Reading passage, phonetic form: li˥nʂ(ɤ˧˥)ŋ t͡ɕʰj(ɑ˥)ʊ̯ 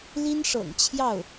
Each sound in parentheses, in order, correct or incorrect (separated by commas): incorrect, incorrect